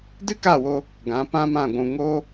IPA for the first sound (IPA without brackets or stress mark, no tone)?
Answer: d